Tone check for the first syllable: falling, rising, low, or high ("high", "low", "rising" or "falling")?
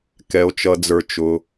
low